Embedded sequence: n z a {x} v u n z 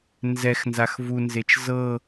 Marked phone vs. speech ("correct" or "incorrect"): correct